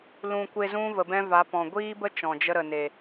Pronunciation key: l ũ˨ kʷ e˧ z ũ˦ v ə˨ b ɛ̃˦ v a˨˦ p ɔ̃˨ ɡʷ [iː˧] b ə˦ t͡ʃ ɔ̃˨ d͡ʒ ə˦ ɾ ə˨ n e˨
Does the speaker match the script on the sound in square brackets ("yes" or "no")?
no